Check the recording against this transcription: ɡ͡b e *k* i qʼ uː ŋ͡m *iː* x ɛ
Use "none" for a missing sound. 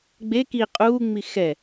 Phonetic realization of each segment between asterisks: k, i

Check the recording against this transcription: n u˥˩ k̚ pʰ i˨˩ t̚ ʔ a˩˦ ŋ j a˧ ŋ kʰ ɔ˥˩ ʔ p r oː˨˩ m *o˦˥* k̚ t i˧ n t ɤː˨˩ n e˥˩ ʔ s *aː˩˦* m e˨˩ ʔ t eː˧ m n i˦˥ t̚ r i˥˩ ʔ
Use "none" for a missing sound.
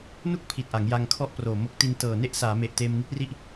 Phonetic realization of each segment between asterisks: o˦˥, aː˩˦

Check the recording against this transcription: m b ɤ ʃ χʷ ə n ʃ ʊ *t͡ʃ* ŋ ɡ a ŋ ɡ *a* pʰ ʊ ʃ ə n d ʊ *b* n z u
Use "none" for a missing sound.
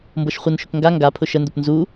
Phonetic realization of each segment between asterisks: k, a, p

